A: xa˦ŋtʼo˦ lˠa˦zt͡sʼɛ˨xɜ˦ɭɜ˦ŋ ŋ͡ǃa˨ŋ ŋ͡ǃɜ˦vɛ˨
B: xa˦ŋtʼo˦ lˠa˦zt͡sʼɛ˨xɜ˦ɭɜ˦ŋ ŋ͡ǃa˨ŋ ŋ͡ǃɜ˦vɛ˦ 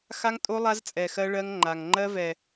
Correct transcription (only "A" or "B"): A